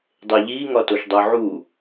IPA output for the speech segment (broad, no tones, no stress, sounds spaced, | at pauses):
dˤ e ʎ i ŋ ɒ t o ʃ dˤ o ʕ u